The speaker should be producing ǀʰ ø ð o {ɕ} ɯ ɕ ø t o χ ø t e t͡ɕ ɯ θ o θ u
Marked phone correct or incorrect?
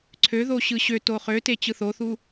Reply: correct